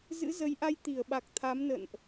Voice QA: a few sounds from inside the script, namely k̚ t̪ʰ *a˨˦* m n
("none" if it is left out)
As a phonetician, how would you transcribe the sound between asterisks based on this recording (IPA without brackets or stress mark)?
a˨˦